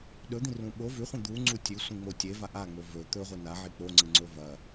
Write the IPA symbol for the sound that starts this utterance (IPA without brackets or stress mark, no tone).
ɗ